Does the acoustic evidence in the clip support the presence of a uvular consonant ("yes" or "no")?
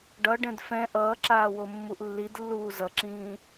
no